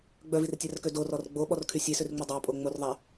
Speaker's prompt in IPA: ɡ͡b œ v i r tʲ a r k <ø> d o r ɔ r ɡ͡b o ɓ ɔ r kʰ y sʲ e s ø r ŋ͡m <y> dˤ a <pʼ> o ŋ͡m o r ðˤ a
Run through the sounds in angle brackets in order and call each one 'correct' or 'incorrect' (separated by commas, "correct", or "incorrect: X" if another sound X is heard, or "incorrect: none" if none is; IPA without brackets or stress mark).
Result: correct, correct, correct